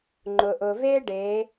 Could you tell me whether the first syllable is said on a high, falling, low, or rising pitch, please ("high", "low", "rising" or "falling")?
low